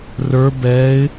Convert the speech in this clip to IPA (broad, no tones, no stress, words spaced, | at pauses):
rə˞ bɛɪ̯